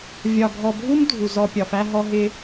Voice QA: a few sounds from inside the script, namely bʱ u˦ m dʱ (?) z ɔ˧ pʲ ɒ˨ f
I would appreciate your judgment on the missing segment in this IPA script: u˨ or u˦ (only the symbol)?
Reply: u˨